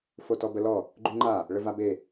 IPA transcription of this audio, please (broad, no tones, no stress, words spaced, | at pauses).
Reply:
fotɔbəlɔ | ɡ͡ǃyŋ͡ǃa | ɭəvabe